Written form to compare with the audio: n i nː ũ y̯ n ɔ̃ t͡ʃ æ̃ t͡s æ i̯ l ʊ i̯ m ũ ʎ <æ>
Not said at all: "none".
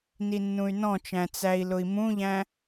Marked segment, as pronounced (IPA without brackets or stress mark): æ̃